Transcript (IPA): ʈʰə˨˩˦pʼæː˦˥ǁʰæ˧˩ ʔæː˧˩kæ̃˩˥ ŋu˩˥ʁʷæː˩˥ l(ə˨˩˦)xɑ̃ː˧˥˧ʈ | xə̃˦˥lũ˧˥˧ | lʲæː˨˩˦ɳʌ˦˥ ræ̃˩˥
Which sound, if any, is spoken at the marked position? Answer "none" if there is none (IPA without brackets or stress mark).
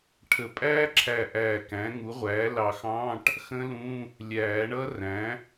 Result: ɑ˨˩˦